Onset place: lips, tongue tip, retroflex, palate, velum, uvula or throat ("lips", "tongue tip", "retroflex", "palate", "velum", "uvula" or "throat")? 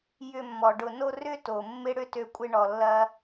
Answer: palate